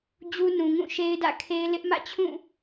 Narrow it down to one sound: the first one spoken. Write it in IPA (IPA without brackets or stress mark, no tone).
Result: d͡ʑ